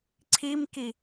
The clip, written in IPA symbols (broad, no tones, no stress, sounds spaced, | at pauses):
ǀʰ i m k i